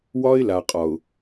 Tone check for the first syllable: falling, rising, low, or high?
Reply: high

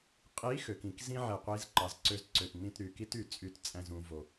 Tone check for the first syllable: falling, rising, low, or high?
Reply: rising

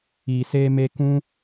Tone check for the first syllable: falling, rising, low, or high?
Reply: low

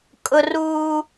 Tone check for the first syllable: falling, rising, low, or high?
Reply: high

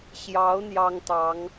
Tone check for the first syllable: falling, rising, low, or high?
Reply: rising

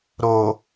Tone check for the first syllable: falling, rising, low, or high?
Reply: low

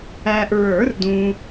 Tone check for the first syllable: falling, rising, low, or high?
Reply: low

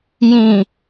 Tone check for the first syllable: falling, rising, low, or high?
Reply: low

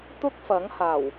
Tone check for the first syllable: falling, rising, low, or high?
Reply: high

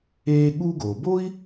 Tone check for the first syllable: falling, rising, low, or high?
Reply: high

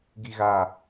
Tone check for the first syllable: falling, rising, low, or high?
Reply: low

